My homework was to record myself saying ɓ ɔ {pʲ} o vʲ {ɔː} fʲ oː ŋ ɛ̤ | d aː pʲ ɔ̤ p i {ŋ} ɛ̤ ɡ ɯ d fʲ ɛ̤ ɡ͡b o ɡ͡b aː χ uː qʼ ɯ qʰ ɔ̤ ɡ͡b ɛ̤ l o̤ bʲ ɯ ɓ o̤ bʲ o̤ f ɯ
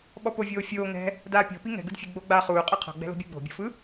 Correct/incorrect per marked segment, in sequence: incorrect: p, incorrect: oː, correct

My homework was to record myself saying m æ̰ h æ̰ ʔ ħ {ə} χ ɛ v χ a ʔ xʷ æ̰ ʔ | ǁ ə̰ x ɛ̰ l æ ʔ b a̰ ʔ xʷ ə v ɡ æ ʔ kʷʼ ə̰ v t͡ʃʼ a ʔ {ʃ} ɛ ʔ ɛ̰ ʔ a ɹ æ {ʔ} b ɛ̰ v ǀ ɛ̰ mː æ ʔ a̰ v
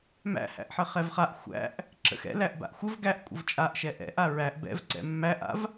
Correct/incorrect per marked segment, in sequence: correct, correct, correct

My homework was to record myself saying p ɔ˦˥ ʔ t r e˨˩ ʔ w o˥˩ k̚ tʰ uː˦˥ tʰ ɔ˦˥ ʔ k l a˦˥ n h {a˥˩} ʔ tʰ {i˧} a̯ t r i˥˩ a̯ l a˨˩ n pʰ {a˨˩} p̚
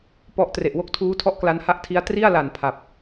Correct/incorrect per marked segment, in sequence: correct, incorrect: i˦˥, correct

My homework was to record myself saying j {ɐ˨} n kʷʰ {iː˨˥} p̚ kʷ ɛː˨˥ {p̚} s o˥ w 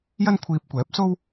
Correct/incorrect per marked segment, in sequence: incorrect: ɐ˥, incorrect: iː˧, correct

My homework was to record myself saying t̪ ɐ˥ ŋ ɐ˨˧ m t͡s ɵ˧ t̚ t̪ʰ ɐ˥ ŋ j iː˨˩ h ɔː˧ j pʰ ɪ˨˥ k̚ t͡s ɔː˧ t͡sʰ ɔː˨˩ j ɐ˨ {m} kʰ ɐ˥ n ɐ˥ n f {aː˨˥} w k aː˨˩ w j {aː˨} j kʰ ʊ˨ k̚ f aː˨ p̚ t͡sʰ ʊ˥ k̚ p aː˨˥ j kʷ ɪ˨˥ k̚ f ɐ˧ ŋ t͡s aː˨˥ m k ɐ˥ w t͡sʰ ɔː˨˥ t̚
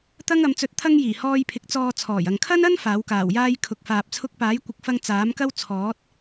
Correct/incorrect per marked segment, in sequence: incorrect: ŋ, correct, incorrect: aː˥

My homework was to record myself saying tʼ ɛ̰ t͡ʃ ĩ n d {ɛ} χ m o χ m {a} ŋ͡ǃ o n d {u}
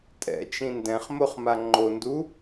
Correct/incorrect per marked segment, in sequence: incorrect: ɛ̃, correct, correct

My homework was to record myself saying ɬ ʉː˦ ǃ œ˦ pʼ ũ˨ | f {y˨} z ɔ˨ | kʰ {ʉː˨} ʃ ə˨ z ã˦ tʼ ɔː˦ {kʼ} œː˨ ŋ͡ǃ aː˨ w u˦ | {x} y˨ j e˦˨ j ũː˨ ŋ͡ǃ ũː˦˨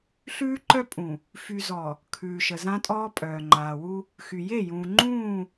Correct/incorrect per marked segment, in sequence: correct, correct, incorrect: pʼ, correct

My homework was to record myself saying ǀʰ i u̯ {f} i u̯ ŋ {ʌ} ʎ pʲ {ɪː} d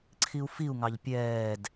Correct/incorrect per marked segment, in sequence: correct, incorrect: ɑ, incorrect: ɛː

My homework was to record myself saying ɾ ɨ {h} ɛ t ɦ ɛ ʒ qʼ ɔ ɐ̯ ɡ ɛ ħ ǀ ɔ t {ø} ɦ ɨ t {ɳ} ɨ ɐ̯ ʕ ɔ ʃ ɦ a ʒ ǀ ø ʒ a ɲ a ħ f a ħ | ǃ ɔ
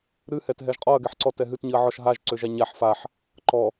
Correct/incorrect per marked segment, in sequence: correct, incorrect: ɛ, incorrect: ɲ

